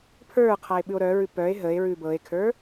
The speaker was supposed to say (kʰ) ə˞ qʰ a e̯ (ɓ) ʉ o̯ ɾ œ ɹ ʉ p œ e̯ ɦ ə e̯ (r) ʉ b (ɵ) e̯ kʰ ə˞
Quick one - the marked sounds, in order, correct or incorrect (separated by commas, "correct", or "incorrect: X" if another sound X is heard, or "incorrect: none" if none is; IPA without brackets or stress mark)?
incorrect: pʰ, correct, incorrect: ɹ, incorrect: ɤ